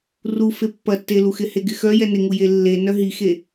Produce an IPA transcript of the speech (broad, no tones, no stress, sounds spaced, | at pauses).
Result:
r u f e pː ɐ tː e l u x ɪ h e ɡ ɪ x œ j ɛ n ɪ ŋ u j e lː e n œ ɦ i x e